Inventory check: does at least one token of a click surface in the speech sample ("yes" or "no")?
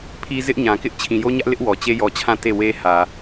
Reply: no